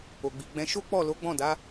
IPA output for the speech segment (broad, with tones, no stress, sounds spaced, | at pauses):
o˨ ɡ͡b i˨ ɡ͡b ɛ̃˧ ʃ o˦ k͡p ɔ˦˨ l o˨˦ ɡ͡b ɔ̃˦˨ d a˨˦